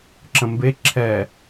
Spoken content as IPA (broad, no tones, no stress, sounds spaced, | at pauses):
ǁ ə̃ m b e ǁʰ ɛ